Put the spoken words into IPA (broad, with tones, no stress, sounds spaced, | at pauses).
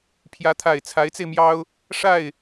pʰ j ä˧˥ t̪ʰ a˨˩ ɪ̯ t͡sʰ a˧˥ ɪ̯ t͡s e˧ ɪ̯ m j ɑ˥ ʊ̯ | ʂ a˥˩ ɪ̯